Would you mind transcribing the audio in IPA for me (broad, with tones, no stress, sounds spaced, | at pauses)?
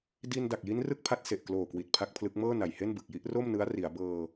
d i˧ n d a˨˩ k̚ j i˦˥ n r ɯ˥˩ k̚ pʰ a˦˥ t̚ s e˨˩ ʔ k l oː˨˩ k w i˨˩ t̚ pʰ a˦˥ k̚ pʰ l ɯ˦˥ k̚ m ɤː˥˩ n a˨˩ j h e˥˩ n b ɯ˨˩ k̚ j i˦˥ ʔ r o˥˩ m n ɯ˦˥ a̯ r i˩˦ a̯ b ɤː˧